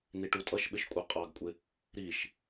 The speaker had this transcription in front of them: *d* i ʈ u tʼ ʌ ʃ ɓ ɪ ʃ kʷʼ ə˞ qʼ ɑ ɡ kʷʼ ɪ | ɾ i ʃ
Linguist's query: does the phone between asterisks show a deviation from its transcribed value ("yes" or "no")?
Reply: yes